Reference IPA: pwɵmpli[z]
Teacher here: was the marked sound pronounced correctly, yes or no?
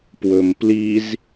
yes